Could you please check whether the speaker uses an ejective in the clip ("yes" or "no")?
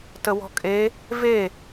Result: yes